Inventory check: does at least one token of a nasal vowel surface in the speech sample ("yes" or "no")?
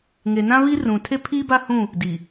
yes